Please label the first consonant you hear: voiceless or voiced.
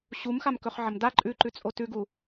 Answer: voiceless